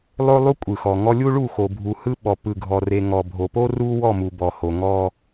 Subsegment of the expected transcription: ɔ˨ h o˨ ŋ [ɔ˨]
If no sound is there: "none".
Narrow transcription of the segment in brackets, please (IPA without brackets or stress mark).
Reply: ɔ˦